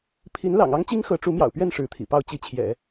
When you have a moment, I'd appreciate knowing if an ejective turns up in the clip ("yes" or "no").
no